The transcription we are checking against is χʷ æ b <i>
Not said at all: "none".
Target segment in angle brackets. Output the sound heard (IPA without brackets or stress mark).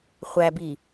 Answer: i